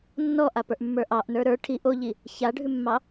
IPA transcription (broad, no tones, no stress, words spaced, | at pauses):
nːɔʔapə˞ʔmːə˞ ʔɑʔnə˞ ɾə˞ ʈʰi ʔoʎi | çaɖʱʉmːɑ